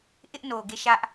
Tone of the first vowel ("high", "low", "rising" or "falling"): high